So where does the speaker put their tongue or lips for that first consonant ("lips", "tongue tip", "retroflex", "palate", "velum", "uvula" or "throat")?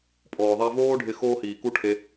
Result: lips